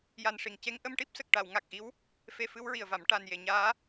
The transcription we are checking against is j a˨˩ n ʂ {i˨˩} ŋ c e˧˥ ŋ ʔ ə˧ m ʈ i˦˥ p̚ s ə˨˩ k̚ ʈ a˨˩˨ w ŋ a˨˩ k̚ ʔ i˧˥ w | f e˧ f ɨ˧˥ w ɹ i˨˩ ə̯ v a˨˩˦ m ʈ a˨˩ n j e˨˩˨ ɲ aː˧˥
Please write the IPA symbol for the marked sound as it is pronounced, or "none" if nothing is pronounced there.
i˨˩˨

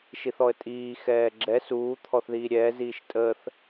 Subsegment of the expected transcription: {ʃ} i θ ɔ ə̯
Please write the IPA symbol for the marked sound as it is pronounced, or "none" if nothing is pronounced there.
ʃ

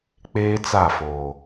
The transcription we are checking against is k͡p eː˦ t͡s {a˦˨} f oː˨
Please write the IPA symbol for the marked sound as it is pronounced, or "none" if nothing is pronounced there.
a˦˨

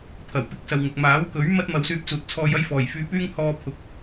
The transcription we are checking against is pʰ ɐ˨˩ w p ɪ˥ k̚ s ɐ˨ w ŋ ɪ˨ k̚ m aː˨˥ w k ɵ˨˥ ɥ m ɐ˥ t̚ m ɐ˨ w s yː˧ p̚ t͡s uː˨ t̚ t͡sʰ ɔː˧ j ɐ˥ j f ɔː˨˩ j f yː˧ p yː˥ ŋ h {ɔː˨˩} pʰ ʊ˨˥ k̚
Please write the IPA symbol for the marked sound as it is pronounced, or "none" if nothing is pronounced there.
ɔː˧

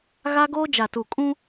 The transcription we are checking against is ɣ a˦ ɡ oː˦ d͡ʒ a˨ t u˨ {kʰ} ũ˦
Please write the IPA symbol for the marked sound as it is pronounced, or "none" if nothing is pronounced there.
kʼ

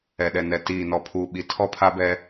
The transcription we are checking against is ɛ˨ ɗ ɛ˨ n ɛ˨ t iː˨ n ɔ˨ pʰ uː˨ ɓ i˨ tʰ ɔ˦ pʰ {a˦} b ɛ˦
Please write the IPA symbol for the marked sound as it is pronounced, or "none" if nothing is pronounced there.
a˦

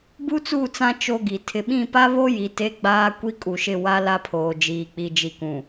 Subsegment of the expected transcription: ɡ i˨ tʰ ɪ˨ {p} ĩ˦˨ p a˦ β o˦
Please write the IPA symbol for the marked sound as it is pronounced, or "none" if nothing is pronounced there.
ɓ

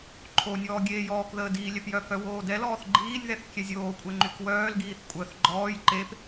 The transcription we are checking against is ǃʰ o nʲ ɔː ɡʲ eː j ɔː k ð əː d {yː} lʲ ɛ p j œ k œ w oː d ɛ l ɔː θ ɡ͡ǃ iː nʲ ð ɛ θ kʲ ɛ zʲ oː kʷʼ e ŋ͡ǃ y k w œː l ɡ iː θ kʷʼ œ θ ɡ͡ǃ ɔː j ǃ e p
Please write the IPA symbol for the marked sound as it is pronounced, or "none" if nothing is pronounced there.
iː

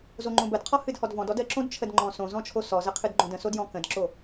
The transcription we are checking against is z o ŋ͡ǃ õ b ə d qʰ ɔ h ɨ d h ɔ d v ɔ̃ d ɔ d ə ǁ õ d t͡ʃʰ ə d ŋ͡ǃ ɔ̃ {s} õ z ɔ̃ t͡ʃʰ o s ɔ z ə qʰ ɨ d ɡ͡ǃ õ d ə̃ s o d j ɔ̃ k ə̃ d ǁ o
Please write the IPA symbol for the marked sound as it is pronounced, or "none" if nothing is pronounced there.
s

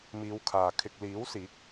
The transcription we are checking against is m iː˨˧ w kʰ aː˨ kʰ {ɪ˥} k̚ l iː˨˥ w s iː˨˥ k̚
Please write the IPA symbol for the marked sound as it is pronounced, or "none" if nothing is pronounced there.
ɪ˨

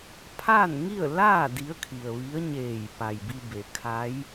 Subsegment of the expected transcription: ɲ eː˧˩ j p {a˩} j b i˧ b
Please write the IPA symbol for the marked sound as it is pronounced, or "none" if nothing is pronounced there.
a˩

